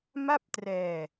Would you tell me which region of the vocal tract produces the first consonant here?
lips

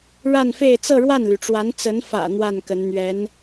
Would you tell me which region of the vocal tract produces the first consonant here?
retroflex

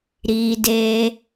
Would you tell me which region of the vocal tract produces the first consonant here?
tongue tip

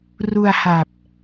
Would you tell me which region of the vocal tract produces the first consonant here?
tongue tip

